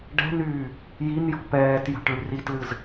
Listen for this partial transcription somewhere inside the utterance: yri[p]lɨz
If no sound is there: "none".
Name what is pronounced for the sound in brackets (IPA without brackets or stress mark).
t